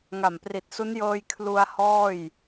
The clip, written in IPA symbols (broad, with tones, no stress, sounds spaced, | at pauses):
ŋ a˨˩ m p r i˨˩ t̚ s u˦˥ n j ɤː˧ j kʰ l u˧ a̯ h ɔː˥˩ j